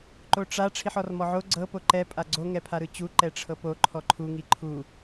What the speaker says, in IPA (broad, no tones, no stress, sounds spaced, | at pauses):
ǃ o ʈ͡ʂ a ʈ͡ʂʰ i ħ ɔ r m ɔ ʕ o ɡ͡ǀ ɤ p o ǃ ɛ pʼ a ɡ͡ǀ o ŋ ɛ pʰ a ɾ ɯ t͡ɕ u ǃ ɛ ʈ͡ʂʰ ɤ p o ǃʰ ɔ ǃʰ u ŋ i ǃʰ u